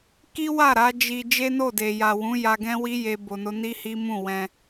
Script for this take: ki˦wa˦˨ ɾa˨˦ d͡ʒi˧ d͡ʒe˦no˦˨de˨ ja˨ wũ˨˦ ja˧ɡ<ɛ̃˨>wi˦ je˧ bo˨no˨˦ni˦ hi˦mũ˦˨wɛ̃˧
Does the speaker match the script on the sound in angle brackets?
no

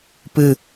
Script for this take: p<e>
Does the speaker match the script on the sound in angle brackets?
no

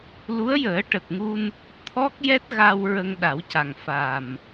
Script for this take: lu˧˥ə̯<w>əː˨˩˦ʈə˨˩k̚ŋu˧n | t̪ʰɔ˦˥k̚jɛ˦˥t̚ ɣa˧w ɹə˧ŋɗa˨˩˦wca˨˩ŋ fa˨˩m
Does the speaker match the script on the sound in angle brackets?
no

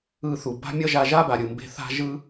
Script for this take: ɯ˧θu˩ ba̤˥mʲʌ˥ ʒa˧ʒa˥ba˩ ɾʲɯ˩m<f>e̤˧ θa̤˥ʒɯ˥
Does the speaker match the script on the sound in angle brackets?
no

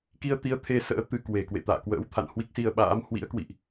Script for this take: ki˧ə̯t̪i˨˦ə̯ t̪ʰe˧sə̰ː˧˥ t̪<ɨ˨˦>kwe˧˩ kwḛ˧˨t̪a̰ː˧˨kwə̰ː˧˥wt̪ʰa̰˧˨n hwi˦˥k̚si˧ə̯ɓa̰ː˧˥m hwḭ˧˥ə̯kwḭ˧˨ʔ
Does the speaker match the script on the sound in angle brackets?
yes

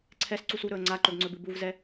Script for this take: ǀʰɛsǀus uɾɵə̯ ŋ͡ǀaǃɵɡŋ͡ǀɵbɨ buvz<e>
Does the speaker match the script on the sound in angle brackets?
no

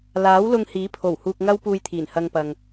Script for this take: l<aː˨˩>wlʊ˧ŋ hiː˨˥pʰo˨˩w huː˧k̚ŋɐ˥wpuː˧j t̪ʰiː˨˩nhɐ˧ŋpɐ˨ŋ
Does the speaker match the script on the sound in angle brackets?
no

